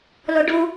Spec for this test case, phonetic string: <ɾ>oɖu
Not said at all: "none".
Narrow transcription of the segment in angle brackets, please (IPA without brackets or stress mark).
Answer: l